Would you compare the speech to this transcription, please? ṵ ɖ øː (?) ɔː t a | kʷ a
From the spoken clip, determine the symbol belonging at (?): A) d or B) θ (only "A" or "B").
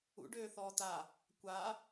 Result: B